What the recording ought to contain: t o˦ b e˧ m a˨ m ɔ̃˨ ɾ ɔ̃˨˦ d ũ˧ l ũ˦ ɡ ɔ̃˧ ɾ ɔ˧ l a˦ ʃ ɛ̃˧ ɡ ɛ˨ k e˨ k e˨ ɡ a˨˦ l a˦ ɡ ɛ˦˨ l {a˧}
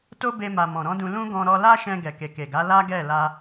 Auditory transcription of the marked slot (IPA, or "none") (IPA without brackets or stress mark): a˧